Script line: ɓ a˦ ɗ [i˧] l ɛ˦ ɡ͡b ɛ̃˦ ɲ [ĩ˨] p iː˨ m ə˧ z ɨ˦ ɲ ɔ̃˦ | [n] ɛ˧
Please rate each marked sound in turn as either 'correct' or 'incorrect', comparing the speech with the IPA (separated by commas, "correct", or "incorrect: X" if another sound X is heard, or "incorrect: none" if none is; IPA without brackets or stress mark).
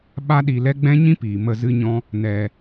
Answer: correct, incorrect: ĩ˦, correct